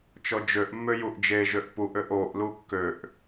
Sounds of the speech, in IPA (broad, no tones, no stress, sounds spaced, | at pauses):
t͡ʃ ɔ d͡ʒ ø ʔ mː ø j u ʔ d͡ʒ e ʒ ø ʔ p u ʔ ø ʔ o ʔ l u kː ø ʔ